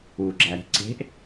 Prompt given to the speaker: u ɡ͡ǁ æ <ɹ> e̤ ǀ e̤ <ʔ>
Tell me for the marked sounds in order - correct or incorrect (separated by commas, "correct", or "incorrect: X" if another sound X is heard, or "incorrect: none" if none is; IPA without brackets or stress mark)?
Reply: incorrect: ɾ, correct